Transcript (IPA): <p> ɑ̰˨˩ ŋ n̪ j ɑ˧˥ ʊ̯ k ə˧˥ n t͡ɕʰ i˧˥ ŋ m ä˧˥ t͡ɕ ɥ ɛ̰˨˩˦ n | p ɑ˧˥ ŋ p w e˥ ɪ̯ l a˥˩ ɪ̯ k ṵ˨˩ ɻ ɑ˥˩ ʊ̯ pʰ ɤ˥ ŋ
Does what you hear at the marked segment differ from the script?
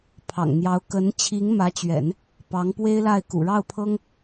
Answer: yes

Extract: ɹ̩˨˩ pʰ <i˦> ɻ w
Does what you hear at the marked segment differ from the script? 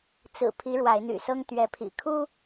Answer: yes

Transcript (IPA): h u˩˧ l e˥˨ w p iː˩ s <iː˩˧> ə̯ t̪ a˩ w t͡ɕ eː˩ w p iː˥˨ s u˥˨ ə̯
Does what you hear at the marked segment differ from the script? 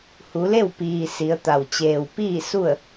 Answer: yes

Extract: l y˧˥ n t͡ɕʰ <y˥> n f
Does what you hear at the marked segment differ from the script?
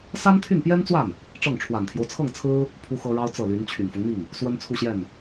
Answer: yes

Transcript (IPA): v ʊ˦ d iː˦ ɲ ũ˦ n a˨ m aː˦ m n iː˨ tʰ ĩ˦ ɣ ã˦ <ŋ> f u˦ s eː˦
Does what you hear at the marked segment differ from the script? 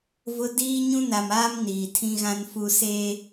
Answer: yes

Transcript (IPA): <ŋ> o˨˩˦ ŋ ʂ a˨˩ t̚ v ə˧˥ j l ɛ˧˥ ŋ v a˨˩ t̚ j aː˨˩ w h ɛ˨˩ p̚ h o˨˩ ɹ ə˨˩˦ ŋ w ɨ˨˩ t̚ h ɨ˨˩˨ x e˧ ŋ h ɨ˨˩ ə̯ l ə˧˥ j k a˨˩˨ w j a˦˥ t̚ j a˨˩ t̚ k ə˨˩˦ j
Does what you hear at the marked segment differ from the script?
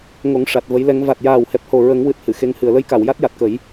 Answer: no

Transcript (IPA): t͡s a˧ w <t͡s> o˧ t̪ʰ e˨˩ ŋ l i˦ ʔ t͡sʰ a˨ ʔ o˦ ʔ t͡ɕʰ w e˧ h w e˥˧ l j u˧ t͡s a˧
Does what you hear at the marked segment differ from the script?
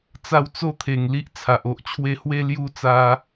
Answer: no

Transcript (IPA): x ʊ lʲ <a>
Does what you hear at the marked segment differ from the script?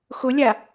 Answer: no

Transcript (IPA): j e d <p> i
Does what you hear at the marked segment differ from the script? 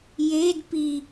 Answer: no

